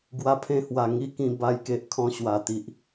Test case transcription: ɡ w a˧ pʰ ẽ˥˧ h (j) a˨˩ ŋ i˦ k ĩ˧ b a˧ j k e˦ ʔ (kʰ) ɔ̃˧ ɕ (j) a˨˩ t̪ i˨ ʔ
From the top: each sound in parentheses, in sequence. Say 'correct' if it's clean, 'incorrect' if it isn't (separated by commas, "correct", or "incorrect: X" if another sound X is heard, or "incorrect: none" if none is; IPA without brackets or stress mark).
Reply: incorrect: w, correct, incorrect: w